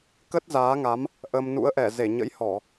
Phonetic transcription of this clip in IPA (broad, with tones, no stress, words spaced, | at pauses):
kə˦˥t̚zaː˨˦ŋa˨˦m | ʔə˧m nṵ˧˥ə̯ʔɛ˧˩ze˧˩ɲə̰˧˥j hɔ˧˩˨